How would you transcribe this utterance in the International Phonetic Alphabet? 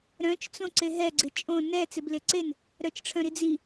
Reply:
ɾ œ̃ t͡ʃ t͡s õ ǀ e ɦ ɛ ɡ͡ǀ ɪ t͡ʃʼ õ n ɛ t͡s ɪ b l ɪ ǀ e n | ɾ œ t͡ʃ ʈ͡ʂʰ œ̃ ɾ i d͡z i

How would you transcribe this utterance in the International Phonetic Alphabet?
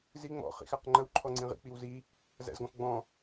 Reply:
z i ŋ͡m ɔ̰ χ ḭ x æ q ŋ͡ǃ ə w ǃʰ ɔ ŋ͡ǀ ĩ ʁ ḭ k͡p i w z i | z æ̰ z ɡ ɔ̃ x ɡ͡b ɔ̃

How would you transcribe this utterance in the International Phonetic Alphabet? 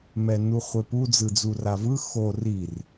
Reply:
m ɛ n u χʷ e p u d͡z ɯ d͡z u r a v ɯ x o r i r

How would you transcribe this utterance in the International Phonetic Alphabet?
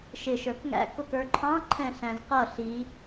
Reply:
ʃ ɪ ʃ ə˞ k ŋ æ̰ k ʊ k ə˞ ǃʰ ɑ̃ ǃʰ ɛ̃ ɬ æ̃ z q ʌ ɬ i

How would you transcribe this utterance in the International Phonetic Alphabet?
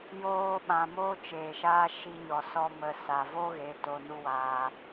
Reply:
j oː˦ ɓ ã˧ m oː˦ t͡ʃ eː˨ ʃ aː˦ ʃ i˦ ɲ ɔ˧ s ɔ˦ m ə˧ s a˨ v o˦ ɣ e˨˦ t o˧ n u˦ w aː˧

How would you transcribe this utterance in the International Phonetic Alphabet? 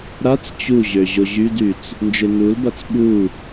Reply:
ɾ a t͡s t͡ɕ u ʑ ø ʑ o ʑ y d y t͡s | n d͡ʒ e n u l b a t͡s ɓ u

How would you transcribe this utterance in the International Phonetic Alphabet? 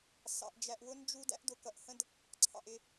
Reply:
s ɑ̰˨ ʔ d͡ʒ æ˨ ʔ w ʊ˦ n d͡ʒ u˦ d æ̰˦ ʔ d ʊ˨ k ʌ˨ ʔ h ə̃˦ d | ǀʰ ɑ̰˨ ʔ ɪ˦˨

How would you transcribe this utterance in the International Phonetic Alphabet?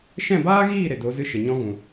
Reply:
ʃ ɛ̃˦˨ b aː˦ ɣ iː˦˨ ɾ e˨ d o˨˦ z ɨ˧ ʃ ə˨ ɲ ɔ̃˧ ɣ ũ˨

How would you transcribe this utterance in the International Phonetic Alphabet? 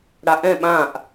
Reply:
ɽ a ʔ ɛ̃ ɓ ã ʔ

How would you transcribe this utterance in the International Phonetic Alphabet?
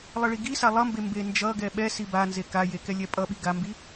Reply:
lˠ ʌ ɭ i ɡ i s a lˠ ʌ m b e m b e n d͡ʒ ʌ ɡ ɛ ɓ ɛ s i b a n z e k a j e k ɛ lʲ ɛ pʼ ʌ ɓ i ɡ a m b i

